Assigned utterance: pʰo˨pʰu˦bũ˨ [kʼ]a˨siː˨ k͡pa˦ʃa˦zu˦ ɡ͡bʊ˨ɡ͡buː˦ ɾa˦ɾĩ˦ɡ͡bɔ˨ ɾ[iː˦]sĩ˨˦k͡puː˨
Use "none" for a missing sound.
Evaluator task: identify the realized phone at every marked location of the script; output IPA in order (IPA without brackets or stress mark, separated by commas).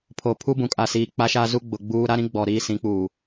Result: kʼ, iː˦